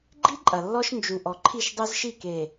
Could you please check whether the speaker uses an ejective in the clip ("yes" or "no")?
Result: yes